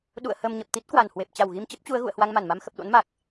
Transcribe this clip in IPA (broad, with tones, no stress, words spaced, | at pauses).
ɗṵ˧˨ə̯ həː˧mɲə˨˩p̚ t̪i˦˥t̚kwa˧˩nhwe˨˩p̚ t͡ɕa˧˩wɣi˧mt͡ɕə˦˥p̚t͡ɕu˨˦ə̯ ɣṵ˧˨ə̯ hwa˧ŋma˧˩nma˧m xə˨˩p̚ɗo̰˧˥nma˨˩k̚